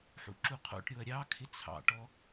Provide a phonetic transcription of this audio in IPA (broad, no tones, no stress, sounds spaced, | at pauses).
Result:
ħ ṵ ǁ u qʰ o̰ ʈ ɾʲ o ɐ̯ ɾʲ ɑ kʰ ɪ t͡sʰ ɑ̰ ʈ ɔ